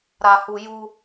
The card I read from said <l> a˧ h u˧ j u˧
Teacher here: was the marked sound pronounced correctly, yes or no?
no